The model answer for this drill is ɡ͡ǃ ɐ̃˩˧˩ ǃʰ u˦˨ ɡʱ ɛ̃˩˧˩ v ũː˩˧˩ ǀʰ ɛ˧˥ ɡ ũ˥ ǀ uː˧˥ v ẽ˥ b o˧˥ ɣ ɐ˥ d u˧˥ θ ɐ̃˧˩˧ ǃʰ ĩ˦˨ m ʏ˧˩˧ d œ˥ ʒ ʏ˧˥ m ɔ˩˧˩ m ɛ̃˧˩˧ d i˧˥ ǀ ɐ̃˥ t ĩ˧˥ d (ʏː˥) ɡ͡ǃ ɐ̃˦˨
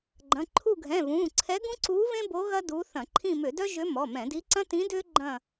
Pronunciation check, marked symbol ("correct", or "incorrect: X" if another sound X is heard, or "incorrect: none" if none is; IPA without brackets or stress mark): correct